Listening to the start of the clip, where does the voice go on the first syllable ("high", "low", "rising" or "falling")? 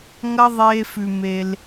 high